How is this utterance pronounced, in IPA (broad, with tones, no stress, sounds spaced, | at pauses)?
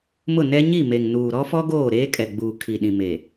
m ʊ˦˨ n ɛ˦ ɲ i˦˨ m e˨ ŋ n uː˨ ɾ ɔ˦ f ɔ˦ ɡ oː˦˨ ɾ eː˦ kʼ ɛ˨ ɡ͡b uː˨ kʰ i˨ ɗ ĩ˨ m e˨